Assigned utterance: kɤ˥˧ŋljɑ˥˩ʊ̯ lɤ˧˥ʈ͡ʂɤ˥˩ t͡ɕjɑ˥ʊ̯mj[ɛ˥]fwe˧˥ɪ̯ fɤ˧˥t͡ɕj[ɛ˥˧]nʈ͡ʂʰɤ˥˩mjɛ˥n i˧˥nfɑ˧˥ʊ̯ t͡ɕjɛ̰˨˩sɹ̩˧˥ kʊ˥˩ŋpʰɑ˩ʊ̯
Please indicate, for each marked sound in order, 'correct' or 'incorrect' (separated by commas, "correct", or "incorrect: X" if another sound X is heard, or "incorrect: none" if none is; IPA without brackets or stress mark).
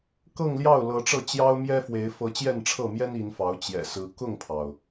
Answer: correct, correct